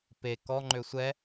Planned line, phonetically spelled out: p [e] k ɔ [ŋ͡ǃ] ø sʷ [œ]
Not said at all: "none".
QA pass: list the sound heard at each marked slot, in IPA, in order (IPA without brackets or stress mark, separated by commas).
e, ŋ͡ǃ, ɛ